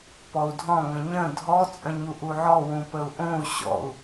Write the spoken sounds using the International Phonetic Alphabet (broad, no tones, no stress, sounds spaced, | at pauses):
p ɔ u̯ dʱ ɔ̃ ŋ ə̃ ɲ ə̃ dʱ ɔ t͡sʼ ə̃ ɲ u ʔ u ʕ ɔ w ũ p ə u̯ ʔ õ u̯ ɕ ɔ̰ u̯